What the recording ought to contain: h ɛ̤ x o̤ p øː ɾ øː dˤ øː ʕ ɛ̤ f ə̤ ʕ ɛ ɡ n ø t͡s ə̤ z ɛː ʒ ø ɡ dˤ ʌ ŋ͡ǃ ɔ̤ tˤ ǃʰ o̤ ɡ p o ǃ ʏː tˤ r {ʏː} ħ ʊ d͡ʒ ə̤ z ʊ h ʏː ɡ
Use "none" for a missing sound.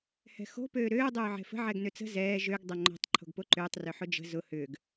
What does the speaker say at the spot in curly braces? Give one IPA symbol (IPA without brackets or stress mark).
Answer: ʏ